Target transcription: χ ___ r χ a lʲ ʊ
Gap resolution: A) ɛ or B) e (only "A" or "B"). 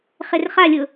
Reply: B